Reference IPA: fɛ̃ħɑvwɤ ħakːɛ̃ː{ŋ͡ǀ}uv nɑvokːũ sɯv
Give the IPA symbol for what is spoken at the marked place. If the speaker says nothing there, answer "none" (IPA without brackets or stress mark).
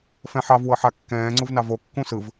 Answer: ŋ͡ǀ